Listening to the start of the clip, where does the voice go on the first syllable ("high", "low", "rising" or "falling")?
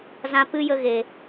high